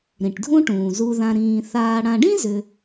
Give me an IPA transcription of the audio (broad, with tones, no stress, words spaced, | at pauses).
ɾĩ˩ʈdʱũ˦ʈũː˩ zu˨ðã˨ ɾĩː˨ θaː˨ɽã˨ɖĩ˥zʏ˨